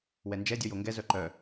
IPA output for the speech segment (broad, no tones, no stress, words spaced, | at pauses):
wɛnd͡ʒɛ dʲɔjoŋɡɛ zœǃœ